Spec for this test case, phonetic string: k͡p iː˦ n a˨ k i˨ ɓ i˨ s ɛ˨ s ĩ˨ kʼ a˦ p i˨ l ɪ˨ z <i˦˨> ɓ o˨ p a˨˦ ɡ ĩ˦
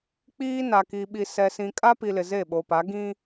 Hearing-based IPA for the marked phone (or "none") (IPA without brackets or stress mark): e˦˨